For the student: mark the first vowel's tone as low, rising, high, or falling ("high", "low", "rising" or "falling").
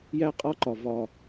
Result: high